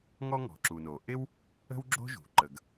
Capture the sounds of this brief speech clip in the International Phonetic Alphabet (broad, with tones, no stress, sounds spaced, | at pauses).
ŋ ɔ˥ ŋ ɔ̤˩ ǁ u˩ n o˩ ʔ ɪ˥ w | ə̤˥ w ɡ͡ǁ o̤˥ ʒ ṳ˩ ǃ ə˩ ɡ